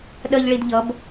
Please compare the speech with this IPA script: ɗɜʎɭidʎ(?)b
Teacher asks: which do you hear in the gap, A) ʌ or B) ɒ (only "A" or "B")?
A